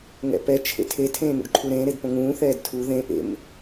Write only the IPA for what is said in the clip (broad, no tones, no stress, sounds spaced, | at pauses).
ŋ ɛ̰ p ɛ t͡ʃʰ ḛ tʰ e tʰ ẽː n ṵ ɖ ǃʰ u ɾ ẽː ɾ e d p õ ŋ ũː θ ɛː d tʰ u ð ẽ ʔ ḛ m